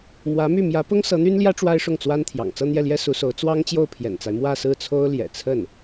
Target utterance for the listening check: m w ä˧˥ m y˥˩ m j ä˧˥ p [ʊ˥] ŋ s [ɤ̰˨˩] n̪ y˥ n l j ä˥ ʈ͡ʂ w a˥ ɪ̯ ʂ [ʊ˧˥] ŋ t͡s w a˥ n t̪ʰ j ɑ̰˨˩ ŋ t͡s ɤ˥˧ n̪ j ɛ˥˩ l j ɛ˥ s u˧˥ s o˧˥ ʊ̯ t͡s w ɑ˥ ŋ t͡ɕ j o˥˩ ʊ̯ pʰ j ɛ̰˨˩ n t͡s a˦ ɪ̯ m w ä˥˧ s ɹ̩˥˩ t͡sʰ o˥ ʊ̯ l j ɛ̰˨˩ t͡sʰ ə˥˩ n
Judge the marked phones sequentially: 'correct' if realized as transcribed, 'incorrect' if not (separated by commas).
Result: correct, incorrect, incorrect